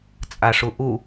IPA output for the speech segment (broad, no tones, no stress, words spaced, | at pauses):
t͡sʼaʂuʔu